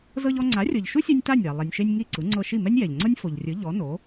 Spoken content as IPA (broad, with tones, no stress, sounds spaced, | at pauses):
z ɤ˧ ʎ ɔ˧ ŋ͡ǀ a˩˥ rʲ ɤ˩ ʎ ʃ u˥ sʲ ɛ˧ nʲ t a˥˩ nʲ a˩ lˠ ɛ˩ nʲ ʃ e˧ nʲ ŋ i˥˩ ǀ ɯ˩˥ ŋ͡ǀ ɤ˧ ʃ i˥˩ m ɛ˥ nʲ j ɛ˩ ʎ ŋ͡ǀ ɤ˥ nʲ f o˩ ʎ rʲ ɯ˩˥ ʎ ɔ˩˥ n o˩˥